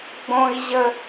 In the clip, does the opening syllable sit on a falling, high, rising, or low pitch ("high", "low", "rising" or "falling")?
high